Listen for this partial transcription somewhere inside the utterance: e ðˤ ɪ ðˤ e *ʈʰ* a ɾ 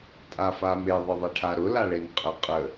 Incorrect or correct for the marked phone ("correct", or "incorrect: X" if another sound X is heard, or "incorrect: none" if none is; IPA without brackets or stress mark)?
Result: correct